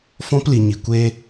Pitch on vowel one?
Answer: high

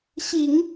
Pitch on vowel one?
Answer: low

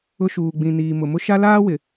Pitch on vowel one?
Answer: high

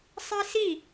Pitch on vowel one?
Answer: high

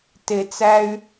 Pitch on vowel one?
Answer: low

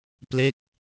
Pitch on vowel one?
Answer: falling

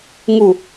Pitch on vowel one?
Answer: falling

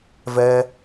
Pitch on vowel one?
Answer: high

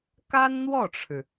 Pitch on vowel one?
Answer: high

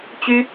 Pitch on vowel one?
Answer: high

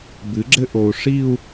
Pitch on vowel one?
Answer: rising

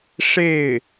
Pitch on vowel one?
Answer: falling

